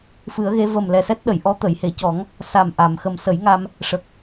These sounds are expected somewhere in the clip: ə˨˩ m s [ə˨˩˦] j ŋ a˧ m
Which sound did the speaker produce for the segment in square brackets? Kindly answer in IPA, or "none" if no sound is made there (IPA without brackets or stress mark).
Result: ə˨˩˦